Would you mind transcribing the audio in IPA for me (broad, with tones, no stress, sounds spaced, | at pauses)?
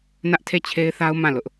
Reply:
n ä˦ ʔ tʰ e˦˨ t͡ɕʰ e˦ ɪ̯ θ a˦ ʊ̯ m ã˦˨ l ʊ˦ ʔ